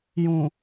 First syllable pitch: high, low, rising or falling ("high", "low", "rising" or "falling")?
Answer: low